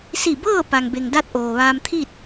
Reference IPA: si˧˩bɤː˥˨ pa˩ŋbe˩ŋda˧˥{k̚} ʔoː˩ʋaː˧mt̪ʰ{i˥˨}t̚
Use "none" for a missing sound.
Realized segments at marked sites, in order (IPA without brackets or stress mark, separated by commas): t̚, i˥˨